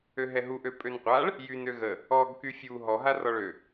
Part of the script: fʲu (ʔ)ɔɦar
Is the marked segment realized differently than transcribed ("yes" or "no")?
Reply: yes